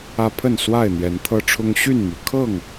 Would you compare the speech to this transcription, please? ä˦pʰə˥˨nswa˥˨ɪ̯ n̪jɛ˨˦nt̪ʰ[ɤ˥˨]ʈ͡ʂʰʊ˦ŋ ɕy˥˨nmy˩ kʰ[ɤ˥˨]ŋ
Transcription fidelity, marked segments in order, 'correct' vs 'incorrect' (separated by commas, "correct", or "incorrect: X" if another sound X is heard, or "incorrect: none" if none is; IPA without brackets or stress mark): incorrect: ɤ˦, correct